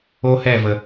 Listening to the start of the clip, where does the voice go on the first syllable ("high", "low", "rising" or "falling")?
high